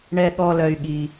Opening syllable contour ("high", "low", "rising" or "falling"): low